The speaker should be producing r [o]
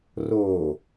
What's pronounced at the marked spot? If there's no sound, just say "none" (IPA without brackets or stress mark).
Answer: o